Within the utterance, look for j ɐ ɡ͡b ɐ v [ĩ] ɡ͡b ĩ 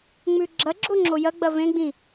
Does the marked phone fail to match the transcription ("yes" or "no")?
yes